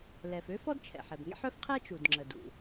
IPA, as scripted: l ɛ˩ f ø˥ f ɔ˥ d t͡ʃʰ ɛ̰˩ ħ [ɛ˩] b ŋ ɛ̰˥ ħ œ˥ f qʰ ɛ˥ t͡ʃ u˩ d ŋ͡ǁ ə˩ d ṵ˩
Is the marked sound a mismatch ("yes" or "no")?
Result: no